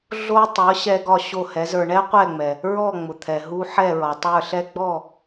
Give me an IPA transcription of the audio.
ɮ o˧ tˤ ɤ˩˥ ɕ ɛ˧ ɡ ɒ˥˩ ɕ o˥˩ h ɛ˩˥ z ə˞˧ ɳ ɛ˥ qʷ ɛ˥˩ ŋ͡m ɛ˩ | ɹ ɔ˥˩ ŋ͡m ʊ˩ t̪ʰ ɛ˩ ɦ u˧ ħ ɛ˥˩ ɹ ɒ˩ tˤ ə˞˥˩ ɬ ɛ˥ ɡ͡b ɔ˥˩

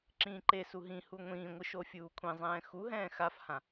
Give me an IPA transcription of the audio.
ǁ ĩː ǃ e s u ɦ ĩ h u ŋʷ ĩː ŋʷ ɯ ʃ o fʲ uː kʷʰ ẽ zˤ ɛ̃ː x u ɦ ɛ̃ː x a f h ã

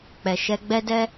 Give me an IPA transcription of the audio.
k͡p ɛ˨ ʃ ɛ˧ ɡ͡b ɛ˦ d ɛ˦

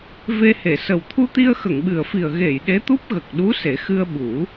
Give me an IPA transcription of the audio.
v e˧ h e˨˩˨ s ə˨˩ w t̪ʰ u˧ t̪ i˧ ə̯ x ə˨˩˨ ŋ ɓ ɨ˨˩ ə̯ f i˨˩ ə̯ ɣ e˨˩˨ j ɗ e˧˥ t̪ u˦˥ p̚ ɣ ə˨˩ k̚ ɗ u˧˥ s e˨˩˦ x ɨ˧ ə̯ ɓ u˨˩˦

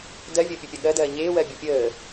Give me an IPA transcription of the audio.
d ɜ vʲ əː pʲ u pʲ ɐ ɠ ɜ d ɜː ɲ eː w ɜ bʲ ɐ pʲ əː

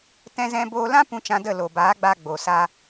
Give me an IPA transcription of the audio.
t ɛ̃˧ z ɛ̃˧ b oː˧ l ã˦ p ũ˧ t͡ʃ ã˧ d ə˦˨ l o˨ b aː˨˦ ɡ͡b aː˧ ɡ͡b o˨ s a˧

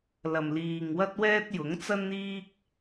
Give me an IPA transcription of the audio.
l ɐ˨ m l iː˨ ŋ w ɐ˥ t̚ w ɛː˥ t̚ j ʊ˨˥ ŋ t͡s ɐ˥ n n̪ iː˥ k̚

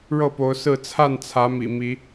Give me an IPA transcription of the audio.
ɻ ɤ˥˨ p o˨˦ ʊ̯ s ɹ̩˥˨ t͡sʰ a˥˨ n t͡sʰ ä˨˦ m ḭ˨˩ m i˨˦

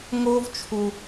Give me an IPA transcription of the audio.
ŋ oː˦ v t͡ʃʰ u˧

